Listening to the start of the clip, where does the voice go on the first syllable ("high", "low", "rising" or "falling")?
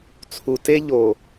low